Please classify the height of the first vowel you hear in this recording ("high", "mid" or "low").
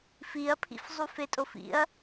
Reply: high